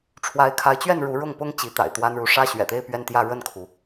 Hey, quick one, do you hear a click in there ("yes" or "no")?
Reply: no